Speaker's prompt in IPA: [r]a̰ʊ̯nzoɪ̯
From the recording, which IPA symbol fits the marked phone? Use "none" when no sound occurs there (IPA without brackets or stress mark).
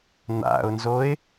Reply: n̪